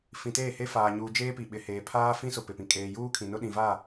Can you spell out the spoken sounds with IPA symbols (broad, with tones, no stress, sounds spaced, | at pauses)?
f ĩ˨ t eː˦˨ h e˦ f aː˨ ɲ uː˨ d͡ʒ eː˦ p i˨ ɓ ɪ˨ h eː˨ pʰ aː˦ f ĩ˦ s ʊ˨ p ɪ˨ p ĩ˨ kʼ eː˨ j uː˦ kʰ ĩ˨ n ʊ˦ ɗ ĩ˨ v a˦˨